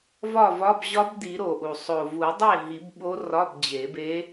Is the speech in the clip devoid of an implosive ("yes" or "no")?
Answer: no